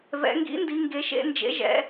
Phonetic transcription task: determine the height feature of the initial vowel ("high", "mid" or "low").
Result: mid